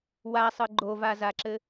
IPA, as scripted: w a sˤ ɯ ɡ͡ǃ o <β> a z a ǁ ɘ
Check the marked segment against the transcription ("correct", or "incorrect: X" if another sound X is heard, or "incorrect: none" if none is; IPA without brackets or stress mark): incorrect: v